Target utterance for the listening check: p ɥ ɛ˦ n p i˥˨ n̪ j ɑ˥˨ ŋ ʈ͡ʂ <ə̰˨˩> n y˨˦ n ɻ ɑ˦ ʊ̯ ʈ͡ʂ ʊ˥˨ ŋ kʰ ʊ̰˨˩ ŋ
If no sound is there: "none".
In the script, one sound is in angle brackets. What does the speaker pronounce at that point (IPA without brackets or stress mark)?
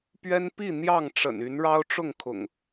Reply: ə̰˨˩